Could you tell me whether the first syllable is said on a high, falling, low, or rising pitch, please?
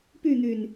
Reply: falling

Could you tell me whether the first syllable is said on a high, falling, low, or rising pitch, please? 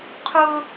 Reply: high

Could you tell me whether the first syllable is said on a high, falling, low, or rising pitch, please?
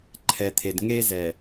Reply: low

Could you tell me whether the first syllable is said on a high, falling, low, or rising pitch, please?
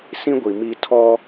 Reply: high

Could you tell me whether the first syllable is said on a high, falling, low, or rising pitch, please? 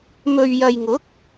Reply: low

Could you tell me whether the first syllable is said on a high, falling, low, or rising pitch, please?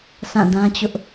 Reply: falling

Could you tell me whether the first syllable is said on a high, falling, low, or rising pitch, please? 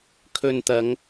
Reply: low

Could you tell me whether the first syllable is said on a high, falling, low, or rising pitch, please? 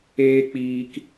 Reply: high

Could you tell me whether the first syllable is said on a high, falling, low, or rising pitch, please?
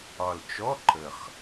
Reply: low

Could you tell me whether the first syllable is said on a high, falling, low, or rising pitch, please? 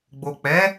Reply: low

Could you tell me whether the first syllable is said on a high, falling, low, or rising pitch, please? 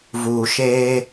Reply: low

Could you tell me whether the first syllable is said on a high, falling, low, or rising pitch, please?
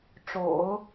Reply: low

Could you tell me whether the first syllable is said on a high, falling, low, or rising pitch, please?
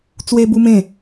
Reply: high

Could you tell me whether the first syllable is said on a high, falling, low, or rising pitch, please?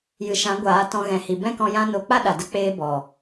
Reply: low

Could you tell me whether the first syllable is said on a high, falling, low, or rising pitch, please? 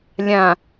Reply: low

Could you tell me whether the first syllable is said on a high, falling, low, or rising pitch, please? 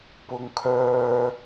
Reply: low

